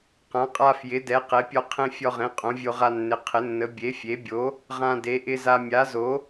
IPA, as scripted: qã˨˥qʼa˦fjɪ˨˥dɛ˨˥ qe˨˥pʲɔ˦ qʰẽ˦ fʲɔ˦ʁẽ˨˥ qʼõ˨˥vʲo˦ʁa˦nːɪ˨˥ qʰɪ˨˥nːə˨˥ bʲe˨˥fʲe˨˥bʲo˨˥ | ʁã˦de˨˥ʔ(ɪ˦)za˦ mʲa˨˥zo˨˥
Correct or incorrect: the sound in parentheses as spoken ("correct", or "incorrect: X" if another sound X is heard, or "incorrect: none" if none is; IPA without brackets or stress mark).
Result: correct